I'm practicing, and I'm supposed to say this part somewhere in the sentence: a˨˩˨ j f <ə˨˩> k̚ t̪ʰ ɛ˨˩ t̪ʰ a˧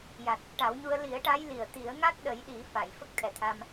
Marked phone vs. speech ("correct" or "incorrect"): incorrect